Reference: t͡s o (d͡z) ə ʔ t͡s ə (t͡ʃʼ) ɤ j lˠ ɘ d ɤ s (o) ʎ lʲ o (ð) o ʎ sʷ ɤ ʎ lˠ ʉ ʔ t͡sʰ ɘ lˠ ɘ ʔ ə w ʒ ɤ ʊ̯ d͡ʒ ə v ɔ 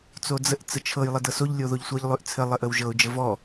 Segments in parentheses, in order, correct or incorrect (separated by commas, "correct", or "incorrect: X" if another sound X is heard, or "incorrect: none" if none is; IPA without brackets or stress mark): correct, incorrect: t͡ʃʰ, correct, correct